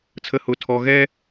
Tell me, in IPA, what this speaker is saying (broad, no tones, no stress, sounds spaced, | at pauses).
t͡sʰ ə h ʊ tʰ ɔ ɣ ɛ